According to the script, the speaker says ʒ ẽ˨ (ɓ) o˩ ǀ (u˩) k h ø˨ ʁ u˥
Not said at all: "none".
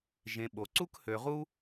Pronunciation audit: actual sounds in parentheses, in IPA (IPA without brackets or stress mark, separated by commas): ɓ, u˥